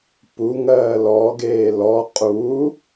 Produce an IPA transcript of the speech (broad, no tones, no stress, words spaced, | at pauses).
puŋɜː lɔɡeː lɔ qʼu